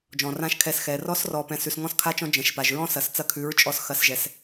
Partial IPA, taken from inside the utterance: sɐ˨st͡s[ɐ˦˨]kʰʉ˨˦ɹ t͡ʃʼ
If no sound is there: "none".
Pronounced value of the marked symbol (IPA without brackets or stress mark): ɐ˦˨